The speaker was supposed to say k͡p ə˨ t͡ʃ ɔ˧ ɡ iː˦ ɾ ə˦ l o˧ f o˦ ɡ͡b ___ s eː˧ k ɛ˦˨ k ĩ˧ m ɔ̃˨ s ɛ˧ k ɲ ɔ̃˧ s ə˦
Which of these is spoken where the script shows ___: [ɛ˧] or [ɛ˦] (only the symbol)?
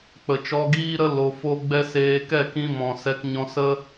ɛ˦